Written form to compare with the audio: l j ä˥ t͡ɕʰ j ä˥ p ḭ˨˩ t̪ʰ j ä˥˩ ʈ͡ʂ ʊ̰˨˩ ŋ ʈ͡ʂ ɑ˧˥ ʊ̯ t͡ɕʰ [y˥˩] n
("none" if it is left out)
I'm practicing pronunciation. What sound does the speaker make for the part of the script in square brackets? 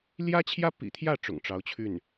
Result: y˥˩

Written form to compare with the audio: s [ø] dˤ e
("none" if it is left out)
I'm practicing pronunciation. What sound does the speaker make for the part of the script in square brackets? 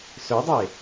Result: ø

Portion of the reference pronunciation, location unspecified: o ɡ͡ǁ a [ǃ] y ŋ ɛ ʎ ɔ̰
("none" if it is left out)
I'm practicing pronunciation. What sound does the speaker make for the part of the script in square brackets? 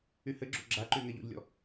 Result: ǃ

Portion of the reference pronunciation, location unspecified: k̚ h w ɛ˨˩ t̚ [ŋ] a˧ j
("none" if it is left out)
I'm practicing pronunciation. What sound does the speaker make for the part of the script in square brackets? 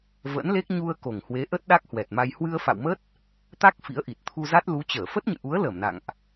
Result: m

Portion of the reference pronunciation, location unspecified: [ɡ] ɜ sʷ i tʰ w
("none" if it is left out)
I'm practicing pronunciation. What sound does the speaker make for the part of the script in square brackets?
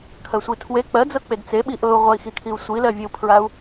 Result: kʰ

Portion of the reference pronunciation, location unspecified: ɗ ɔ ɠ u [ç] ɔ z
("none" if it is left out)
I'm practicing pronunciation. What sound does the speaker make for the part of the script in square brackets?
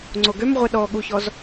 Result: ç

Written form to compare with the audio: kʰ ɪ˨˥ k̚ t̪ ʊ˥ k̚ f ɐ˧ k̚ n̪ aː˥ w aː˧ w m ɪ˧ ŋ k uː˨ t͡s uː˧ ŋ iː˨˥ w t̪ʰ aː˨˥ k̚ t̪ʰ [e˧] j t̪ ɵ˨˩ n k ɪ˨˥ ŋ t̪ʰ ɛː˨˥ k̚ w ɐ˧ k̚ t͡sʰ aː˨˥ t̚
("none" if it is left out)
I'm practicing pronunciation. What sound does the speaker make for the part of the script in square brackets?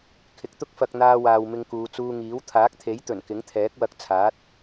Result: e˨˥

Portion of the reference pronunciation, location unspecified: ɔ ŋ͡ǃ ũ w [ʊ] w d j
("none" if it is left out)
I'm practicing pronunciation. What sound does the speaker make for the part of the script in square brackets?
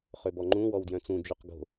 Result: ɔ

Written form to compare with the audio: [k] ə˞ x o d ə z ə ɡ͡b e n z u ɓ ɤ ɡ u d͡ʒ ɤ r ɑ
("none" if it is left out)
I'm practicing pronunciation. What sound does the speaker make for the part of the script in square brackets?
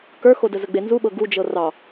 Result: k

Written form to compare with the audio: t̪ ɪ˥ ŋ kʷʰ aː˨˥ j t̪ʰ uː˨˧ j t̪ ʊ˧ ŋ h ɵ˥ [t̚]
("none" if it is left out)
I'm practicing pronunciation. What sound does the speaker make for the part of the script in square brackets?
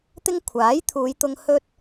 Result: t̚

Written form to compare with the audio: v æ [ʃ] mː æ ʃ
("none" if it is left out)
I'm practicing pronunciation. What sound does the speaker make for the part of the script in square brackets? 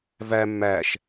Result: none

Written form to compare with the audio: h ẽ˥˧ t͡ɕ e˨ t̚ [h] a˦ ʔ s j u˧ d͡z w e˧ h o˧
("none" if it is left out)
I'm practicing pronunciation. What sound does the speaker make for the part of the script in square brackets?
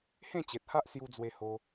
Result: h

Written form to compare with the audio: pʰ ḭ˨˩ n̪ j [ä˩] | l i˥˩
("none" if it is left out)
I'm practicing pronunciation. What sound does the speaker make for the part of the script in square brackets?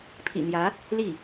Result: ä˧˥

